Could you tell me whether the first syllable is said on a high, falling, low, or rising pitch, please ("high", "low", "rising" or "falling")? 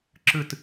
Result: falling